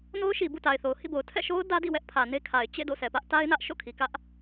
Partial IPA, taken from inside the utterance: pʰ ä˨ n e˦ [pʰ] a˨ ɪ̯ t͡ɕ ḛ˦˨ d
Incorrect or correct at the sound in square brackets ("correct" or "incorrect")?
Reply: incorrect